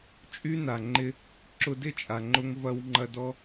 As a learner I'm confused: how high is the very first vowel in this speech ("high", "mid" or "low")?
high